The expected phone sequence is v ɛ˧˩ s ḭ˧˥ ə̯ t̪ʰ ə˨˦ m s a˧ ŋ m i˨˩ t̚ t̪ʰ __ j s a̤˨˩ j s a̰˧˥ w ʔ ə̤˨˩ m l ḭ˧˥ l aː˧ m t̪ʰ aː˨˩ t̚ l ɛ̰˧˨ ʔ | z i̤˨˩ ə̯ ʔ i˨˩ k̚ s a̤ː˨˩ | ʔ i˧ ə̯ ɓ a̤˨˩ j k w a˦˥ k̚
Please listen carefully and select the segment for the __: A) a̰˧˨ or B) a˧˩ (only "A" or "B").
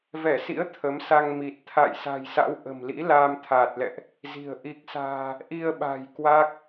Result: A